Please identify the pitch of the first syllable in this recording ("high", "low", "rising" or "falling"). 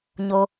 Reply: low